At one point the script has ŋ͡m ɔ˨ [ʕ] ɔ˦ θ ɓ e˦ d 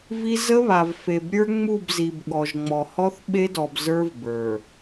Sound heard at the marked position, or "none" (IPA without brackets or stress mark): h